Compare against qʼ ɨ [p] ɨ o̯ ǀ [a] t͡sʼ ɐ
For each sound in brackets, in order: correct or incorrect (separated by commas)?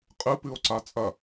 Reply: correct, correct